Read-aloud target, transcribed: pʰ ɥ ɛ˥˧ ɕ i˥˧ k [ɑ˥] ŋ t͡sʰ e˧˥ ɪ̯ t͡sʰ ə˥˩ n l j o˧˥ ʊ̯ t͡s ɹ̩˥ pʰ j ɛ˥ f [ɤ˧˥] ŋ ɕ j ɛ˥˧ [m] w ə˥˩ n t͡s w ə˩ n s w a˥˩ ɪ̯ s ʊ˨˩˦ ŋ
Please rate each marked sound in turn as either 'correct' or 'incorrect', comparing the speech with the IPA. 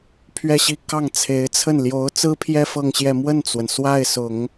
incorrect, incorrect, correct

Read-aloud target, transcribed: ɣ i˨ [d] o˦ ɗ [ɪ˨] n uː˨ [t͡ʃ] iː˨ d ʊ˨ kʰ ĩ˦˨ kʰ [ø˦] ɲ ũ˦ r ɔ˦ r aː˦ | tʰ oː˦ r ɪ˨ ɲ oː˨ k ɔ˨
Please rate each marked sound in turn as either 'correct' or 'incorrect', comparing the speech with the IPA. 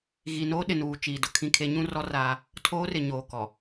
incorrect, correct, correct, incorrect

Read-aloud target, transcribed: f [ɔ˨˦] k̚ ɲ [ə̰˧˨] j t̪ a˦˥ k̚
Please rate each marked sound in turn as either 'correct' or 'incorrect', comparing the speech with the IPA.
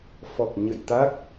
incorrect, correct

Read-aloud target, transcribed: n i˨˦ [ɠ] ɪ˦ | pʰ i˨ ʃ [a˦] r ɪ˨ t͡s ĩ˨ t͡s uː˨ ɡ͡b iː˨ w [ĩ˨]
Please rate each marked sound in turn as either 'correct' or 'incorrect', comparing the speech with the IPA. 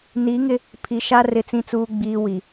incorrect, correct, incorrect

